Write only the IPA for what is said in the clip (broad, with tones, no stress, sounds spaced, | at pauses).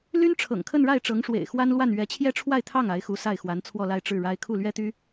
l y˥ n ʈ͡ʂʰ ɤ̰˨˩ ŋ kʰ ə˥˧ n ɻ a˥˩ ɪ̯ ʈ͡ʂ ɤ˧˥ ŋ ʂ w ḛ˨˩ ɪ̯ x w a˥ n l w a˥˩ n ɥ ɛ˧˥ t͡ɕʰ j ɛ˥˧ ʈ͡ʂʰ w a˥˧ ɪ̯ t̪ʰ ɑ˥˩ ŋ a˧˥ ɪ̯ x u˧˥ s a˥˩ ɪ̯ x w a˧˥ n t͡sʰ w ɔ˥˧ l a˥˧ ɪ̯ ʈ͡ʂ ɻ̩˥˩ ɻ a˥ ɪ̯ kʰ u˥˩ l ɥ ɛ˥ t̪ y˥